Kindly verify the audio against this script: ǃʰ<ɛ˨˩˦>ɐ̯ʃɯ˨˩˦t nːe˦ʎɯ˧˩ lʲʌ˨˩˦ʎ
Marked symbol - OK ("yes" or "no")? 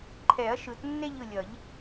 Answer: yes